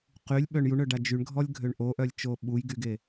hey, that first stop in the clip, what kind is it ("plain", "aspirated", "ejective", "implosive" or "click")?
plain